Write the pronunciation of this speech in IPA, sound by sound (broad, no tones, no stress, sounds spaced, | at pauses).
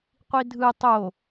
qʷ i dʱ ɯ tˤ o